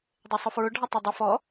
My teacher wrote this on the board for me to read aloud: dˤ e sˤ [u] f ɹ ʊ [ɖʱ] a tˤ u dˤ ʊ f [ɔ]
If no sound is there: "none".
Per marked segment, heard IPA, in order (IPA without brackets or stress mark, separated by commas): ʊ, ɖʱ, ɔ